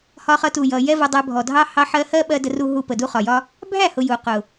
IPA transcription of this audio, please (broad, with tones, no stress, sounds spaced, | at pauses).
h ɒ˧ χ ʌ˧ t u˨ j ʌ˨ j ɛ˦ v ʌ˧ dˤ æ˧ bʱ ɔ˨ dʱ ɑ˦ h ɑ˧ ħ ɜ˧ h ɜ˦ ɓ ɜ˧ d ə˧ r u˧ ɦ u˧ p ə˨ d u˦ χ ɒ˨ j ɒ˦ | bʱ æ˦˨ h ʊ˨ j u˨ q ʊ˨